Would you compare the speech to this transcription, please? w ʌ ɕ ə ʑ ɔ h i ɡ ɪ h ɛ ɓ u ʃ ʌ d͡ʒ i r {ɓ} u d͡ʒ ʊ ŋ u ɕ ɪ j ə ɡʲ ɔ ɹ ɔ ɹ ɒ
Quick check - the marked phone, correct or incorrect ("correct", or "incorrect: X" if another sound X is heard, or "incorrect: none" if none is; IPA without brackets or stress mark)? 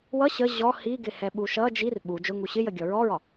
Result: correct